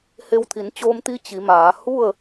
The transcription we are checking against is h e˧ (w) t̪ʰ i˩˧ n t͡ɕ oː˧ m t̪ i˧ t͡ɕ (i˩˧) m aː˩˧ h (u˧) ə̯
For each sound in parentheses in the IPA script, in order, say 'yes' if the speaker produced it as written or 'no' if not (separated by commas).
yes, yes, no